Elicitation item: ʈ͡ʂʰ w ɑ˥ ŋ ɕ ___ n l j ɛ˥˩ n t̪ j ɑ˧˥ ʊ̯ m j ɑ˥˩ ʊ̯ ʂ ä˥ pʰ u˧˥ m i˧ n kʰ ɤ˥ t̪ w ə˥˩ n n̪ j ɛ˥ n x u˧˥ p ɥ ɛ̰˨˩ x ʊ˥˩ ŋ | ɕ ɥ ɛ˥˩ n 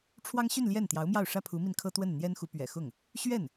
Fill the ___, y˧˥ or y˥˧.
y˥˧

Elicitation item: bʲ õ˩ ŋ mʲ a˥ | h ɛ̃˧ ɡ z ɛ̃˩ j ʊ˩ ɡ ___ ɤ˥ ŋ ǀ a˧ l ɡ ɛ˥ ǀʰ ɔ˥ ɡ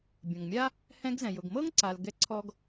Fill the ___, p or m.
m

